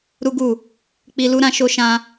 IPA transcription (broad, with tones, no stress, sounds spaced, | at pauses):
ɾ u˦ ɡ u˦˨ | k͡p i˧ l u˦ ɾ ã˧ ʃ o˦ ʃ ã˦